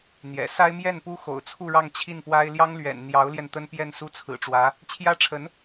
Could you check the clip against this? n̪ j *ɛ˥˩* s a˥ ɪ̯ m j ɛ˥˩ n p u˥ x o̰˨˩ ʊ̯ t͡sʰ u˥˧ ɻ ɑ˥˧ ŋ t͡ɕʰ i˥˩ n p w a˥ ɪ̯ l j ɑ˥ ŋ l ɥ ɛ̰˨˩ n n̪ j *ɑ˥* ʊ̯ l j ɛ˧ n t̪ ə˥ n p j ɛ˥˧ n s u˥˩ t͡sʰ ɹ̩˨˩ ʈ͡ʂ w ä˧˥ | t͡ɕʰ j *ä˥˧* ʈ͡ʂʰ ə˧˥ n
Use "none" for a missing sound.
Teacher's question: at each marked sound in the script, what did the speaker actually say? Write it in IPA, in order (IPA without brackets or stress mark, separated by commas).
ɛ̰˨˩, ɑ˧˥, ä˥